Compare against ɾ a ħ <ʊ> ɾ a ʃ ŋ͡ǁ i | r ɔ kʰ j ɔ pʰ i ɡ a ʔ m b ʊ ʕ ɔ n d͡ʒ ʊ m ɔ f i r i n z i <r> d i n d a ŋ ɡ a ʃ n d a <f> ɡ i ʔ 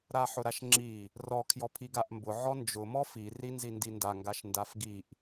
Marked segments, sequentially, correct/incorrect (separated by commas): correct, incorrect, correct